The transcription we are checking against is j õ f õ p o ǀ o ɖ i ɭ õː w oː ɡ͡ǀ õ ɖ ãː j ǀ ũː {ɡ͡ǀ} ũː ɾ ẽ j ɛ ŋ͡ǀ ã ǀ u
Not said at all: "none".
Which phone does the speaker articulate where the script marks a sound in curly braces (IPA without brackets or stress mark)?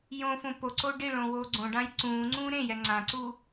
ŋ͡ǀ